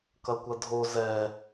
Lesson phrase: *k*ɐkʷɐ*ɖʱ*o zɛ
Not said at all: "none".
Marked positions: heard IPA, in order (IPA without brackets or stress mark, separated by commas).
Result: k, dʱ